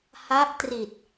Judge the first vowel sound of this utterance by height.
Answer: low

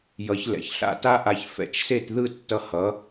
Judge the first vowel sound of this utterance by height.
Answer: mid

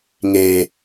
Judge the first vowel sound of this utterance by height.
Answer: mid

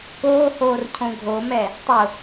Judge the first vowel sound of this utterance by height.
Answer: mid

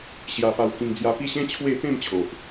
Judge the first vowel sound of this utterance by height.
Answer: low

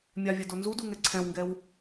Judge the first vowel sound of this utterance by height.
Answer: low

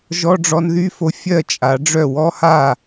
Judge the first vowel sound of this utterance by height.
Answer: mid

